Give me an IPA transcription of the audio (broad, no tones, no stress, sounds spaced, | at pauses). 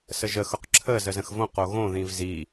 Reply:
s ə ʒ ə x ʊ q ǁʰ ə z ə z ə̃ x v õ q o ɣ õ ð ĩ v z i